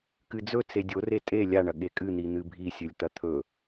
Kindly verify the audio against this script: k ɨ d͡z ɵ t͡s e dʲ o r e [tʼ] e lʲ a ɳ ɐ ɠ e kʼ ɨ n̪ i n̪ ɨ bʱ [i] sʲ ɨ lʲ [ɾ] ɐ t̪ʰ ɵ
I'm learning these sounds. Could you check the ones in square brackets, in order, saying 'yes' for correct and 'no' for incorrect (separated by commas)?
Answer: yes, yes, no